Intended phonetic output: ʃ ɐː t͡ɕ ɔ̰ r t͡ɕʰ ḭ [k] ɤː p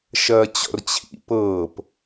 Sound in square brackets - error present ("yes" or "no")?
yes